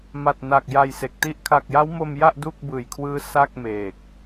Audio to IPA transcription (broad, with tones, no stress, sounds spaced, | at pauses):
m a˨˩ t̚ n a˨˩ k̚ j a˧ j s e˨˩ k̚ t i˥˩ ʔ kʰ a˨˩ k̚ j a˦˥ w m o˧ m j a˥˩ ʔ d u˥˩ k̚ b ɯː˨˩ j kʰ w ɯː˦˥ s a˥˩ k̚ m eː˨˩ k̚